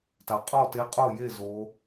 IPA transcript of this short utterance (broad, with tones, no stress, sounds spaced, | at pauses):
t a˨˩ qʼ ɔ˥˨ t e˧˥ qʼ o˥˨ j e˥˨ z o˧˥